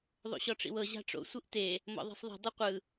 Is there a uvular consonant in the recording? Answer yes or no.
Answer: yes